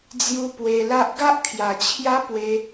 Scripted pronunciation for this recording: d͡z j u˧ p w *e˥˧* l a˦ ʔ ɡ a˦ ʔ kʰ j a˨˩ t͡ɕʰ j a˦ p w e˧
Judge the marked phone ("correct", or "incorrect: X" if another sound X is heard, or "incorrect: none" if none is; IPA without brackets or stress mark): incorrect: e˧